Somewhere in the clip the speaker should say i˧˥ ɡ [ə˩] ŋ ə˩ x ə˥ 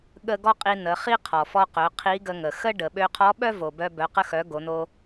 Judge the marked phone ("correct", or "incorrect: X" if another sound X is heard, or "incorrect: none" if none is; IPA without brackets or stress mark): incorrect: ə˧